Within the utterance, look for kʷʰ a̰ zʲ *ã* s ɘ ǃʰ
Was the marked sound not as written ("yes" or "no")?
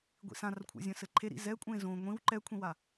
yes